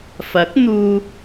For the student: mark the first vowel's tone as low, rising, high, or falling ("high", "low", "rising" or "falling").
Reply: rising